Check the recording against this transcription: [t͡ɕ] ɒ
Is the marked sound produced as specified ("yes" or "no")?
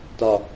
no